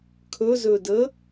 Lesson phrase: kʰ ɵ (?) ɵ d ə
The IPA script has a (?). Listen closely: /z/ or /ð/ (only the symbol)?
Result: z